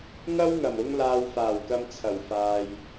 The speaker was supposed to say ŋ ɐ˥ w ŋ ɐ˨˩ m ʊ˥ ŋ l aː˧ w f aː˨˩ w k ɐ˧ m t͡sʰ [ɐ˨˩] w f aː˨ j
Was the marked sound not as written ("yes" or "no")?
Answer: no